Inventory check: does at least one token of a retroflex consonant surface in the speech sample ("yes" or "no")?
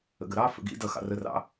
no